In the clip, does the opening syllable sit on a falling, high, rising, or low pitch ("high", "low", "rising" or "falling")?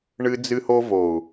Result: high